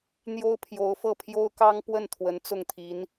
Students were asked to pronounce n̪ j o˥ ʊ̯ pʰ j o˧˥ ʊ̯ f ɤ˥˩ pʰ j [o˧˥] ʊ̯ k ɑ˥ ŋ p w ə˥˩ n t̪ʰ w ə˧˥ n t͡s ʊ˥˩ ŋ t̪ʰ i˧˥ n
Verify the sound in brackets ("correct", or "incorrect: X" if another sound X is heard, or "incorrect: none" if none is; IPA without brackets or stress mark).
incorrect: o˥